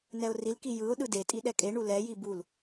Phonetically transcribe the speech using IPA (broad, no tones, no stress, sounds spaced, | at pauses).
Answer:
n ɛ ʊ̯ r i l k i j ɯ ʊ̯ ɗ ɯ d e tʼ i ɗ ɛ kʼ e ɳ u l ɛ j i b u l